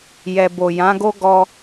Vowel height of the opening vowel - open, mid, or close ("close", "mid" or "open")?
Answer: mid